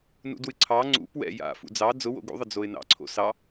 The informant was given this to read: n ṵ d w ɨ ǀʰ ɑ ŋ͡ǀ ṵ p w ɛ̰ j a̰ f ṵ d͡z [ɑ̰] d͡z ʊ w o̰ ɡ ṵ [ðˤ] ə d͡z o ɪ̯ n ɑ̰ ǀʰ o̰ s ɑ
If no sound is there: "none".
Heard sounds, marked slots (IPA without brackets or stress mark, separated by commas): ɑ, ðˤ